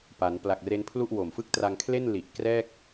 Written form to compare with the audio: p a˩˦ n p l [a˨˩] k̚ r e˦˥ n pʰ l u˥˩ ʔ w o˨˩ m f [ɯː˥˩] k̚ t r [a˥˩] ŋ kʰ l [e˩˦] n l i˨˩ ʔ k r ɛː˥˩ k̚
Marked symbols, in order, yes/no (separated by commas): yes, no, no, no